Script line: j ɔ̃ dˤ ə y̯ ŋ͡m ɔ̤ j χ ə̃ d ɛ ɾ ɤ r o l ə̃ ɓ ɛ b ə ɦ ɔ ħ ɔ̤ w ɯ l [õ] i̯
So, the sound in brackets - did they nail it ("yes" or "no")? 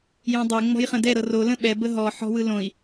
yes